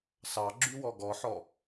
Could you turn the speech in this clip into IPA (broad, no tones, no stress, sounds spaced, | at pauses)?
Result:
s ɑ ɡ͡ǁ y w ɔ ɡ ɔ ħ ɔ